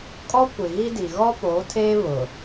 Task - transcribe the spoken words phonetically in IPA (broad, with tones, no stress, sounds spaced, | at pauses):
kʼ ɔ˦ kʷ ɪ˨ ɣ i˦ d i˨ ɣ ɔ˦ p oː˨˦ tʰ eː˦ β ʊ˨